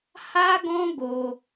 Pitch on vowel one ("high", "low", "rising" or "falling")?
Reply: high